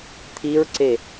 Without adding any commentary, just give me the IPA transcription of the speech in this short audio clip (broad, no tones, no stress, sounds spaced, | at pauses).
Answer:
t̪ʰ i ɹ ǀ e